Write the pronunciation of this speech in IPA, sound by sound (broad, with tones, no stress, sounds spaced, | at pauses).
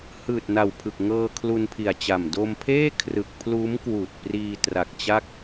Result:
h ɯː˨˩ t̚ n a˨˩ w pʰ ɯ˨˩ k̚ ŋ ɤː˧ kʰ l u˧ n pʰ i˨˩ a̯ t͡ɕ a˨˩ m d o˧ m pʰ eː˥˩ kʰ r ɯ˨˩ k̚ pʰ l uː˦˥ m k w uː˨˩ t̚ p r iː˧ t r a˨˩ k̚ t͡ɕ a˦˥ k̚